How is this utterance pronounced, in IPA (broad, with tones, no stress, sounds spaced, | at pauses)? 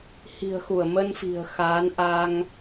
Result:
h i̤˨˩ ə̯ x u˧˩ ə̯ m ə˧ n f i̤˨˩ ə̯ x aː˨˦ n ʔ a˧ ŋ